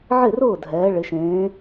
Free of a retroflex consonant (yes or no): no